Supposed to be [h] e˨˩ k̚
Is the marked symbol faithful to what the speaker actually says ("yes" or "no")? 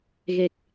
no